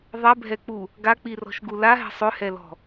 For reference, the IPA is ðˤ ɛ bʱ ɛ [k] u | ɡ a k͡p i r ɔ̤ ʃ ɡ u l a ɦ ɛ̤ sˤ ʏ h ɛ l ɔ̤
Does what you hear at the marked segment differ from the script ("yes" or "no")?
yes